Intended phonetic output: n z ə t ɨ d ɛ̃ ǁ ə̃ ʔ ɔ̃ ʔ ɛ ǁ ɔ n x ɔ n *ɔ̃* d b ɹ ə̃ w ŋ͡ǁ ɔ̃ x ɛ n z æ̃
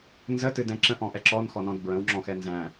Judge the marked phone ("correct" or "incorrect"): correct